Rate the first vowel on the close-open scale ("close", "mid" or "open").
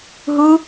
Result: close